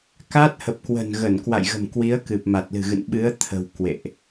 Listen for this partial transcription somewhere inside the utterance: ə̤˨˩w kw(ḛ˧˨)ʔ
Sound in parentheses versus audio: correct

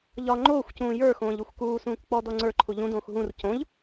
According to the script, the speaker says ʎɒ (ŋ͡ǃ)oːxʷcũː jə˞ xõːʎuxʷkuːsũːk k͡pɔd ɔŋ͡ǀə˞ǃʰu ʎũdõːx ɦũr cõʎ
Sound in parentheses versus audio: correct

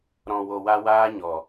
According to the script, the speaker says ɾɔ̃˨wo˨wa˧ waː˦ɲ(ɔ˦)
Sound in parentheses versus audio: incorrect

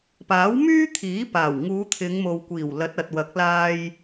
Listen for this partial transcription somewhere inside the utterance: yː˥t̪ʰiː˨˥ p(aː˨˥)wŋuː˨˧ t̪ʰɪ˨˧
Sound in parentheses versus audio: incorrect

